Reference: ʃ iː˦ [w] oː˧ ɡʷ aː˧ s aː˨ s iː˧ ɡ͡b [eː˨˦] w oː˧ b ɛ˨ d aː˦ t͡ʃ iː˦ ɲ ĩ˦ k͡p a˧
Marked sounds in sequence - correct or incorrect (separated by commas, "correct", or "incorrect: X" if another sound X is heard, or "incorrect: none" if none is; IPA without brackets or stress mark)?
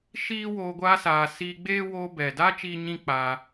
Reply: correct, incorrect: eː˦